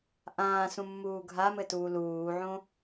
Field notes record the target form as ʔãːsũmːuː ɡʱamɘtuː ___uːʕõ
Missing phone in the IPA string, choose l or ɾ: l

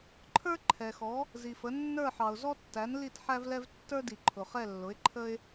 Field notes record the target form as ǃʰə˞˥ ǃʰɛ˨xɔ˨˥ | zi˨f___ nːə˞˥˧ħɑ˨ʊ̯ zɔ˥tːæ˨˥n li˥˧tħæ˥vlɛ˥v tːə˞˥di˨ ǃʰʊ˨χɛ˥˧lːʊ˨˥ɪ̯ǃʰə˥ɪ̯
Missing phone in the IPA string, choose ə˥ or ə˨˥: ə˨˥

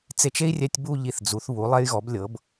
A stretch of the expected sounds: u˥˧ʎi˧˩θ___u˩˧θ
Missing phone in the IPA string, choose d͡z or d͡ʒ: d͡z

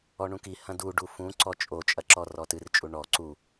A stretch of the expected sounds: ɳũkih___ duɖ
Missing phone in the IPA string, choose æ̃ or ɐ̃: ɐ̃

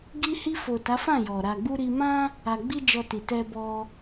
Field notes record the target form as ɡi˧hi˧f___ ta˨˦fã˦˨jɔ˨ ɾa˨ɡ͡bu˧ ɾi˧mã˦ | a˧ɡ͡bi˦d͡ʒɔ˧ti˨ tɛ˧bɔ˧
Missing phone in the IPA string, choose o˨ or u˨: o˨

